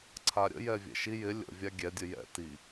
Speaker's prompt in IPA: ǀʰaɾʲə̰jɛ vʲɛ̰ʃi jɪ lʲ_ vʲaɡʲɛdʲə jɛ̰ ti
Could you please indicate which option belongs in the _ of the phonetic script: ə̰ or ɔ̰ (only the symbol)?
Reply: ə̰